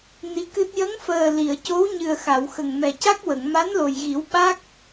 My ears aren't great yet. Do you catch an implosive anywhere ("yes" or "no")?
yes